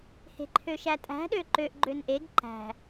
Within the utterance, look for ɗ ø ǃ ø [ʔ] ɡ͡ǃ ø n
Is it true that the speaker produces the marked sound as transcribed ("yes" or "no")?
yes